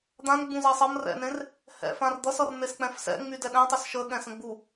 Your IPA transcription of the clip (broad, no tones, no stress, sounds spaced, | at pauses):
d̪ ã n ɡ͡b ũ z ɛ sˤ ʌ m r ɛ̰ n ẽ r | h ɛ̰ f ã r d̪ ʌ s ʌ r n̪ e s k͡p ɛ̃ f s ɛ̰ ŋ͡m y d ɛ ɗ ɛ̃ tˤ y s ʃ ə ɠ ɛ̃ s ə̃ ɡ͡b u